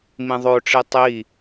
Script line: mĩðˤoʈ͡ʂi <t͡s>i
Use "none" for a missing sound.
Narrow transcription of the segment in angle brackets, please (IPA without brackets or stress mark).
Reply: tˤ